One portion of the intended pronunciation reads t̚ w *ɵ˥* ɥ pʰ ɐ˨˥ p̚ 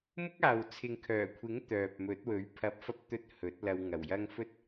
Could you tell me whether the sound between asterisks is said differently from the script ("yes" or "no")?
yes